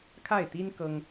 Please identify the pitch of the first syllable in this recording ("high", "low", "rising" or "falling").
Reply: falling